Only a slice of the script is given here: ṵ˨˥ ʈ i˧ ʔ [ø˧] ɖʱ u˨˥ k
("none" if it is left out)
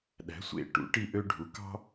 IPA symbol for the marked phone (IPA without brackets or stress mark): ø˧